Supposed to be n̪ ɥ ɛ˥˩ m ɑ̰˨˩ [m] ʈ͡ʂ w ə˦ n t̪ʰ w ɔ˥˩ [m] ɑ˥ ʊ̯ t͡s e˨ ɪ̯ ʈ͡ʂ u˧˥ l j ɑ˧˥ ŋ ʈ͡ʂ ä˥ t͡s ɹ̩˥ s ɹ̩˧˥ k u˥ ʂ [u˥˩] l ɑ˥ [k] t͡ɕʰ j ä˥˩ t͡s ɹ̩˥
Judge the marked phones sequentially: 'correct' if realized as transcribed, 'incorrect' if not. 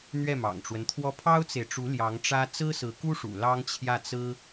incorrect: ŋ, incorrect: pʰ, incorrect: ṵ˨˩, incorrect: ŋ

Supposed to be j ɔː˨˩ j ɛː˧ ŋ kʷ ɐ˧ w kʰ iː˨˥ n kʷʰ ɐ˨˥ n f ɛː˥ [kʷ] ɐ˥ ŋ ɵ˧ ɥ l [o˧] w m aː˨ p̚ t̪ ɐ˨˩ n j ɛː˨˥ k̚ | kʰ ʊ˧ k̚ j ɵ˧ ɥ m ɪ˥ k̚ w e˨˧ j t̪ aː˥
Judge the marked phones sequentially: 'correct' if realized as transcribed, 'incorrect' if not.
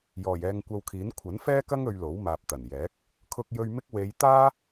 incorrect: k, incorrect: o˨˥

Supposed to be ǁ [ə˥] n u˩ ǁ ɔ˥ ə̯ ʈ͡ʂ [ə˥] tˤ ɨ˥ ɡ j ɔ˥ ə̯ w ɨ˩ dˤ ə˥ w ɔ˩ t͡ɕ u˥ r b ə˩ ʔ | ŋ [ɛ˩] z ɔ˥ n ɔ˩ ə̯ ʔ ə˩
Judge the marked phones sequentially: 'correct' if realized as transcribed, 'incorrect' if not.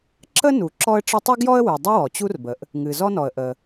correct, correct, incorrect: ɨ˩

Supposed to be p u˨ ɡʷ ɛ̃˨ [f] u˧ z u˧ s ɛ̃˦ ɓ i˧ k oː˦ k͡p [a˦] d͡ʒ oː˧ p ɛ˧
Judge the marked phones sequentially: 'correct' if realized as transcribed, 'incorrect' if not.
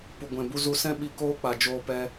incorrect: b, incorrect: a˨

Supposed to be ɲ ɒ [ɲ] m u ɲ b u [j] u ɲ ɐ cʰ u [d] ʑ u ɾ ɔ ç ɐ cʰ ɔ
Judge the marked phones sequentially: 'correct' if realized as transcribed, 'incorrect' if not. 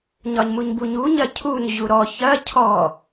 correct, incorrect: ɲ, incorrect: n

